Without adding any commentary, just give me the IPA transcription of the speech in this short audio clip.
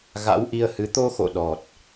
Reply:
ɣ a̰˧˥ w ʔ i˧ ə̯ h ɨ˨˦ t̪ o˧ x o̰˧˨ ɗ ɔ˨˩ t̚

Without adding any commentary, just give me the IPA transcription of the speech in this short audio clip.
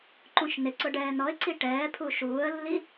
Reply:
ǃ ũ ʃ n ɪ ǀ ʊ ɖ ɛː n ɔ ɪ̯ ǀ i ʈ ɛː pʰ u ʃ uː ə̯ lː i

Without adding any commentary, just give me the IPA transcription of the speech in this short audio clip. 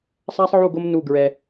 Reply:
sˤ a˦ sˤ ʕ u˦˨ ɡ o˦ m n u˦˨ ɡ ɹ ɛ˦

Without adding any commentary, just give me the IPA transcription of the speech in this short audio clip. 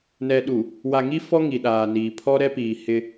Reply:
n ɛ˨ ɗ u˨ | w a˨ ŋ i˦ f ɔ˦ ŋ i˨ ɗ aː˨ n iː˨ pʰ ɔ˦ ɾ ɛ˦ p iː˨ h ɪ˦

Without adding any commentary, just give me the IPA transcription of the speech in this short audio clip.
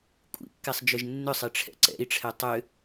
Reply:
kʷʼ ḭ kː ɛ sˤ d͡ʒ ʏ ʒ nː ʏ sˤ i ʈ͡ʂʰ ɛ̰ ǀ ɛ̰ i̯ ʈ͡ʂʰ ɛ tˤ ʏ

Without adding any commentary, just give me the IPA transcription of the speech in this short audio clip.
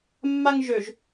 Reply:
mː a ŋ ʒ ø ʒ

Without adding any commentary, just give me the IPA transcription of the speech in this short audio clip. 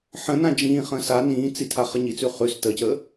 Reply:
ħ ə̃ n ã d͡ʒ ĩː χ ə̃ː s a n ĩː t͡s i tʰ a χ ə ɲ i t͡s ʉ χ ʉ s t ə c ə

